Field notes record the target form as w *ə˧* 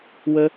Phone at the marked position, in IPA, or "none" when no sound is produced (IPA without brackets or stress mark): ə˧